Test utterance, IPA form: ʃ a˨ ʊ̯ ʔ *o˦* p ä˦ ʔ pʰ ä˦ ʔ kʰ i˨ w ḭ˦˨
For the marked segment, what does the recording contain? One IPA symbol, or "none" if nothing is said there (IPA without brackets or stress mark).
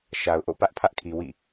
o̰˦˨